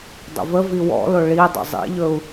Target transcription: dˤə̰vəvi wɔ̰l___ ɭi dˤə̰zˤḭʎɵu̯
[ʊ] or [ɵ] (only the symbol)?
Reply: ʊ